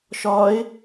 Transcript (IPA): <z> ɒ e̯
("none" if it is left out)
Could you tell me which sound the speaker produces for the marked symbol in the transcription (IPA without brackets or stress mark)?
ʃ